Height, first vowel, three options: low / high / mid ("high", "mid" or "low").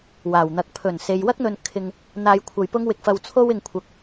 low